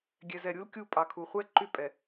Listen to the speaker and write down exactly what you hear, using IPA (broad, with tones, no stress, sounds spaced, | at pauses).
ɡʲ ɛ˨ z ɛ˨ ɾʲ u˦ l kʲ u˦˨ pʼ ɑ˨ kʰ u˨ χʷ ɛ˦ ǃ y˦ pʼ ɛ˨